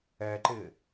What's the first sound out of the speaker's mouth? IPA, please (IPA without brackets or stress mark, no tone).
ɛː